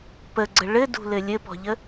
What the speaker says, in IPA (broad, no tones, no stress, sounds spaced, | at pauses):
p ə ɡ͡ǀ ə ɭ ɘ d ṳ l ɘ lʲ ɘ p ɔ̤ ʎ ə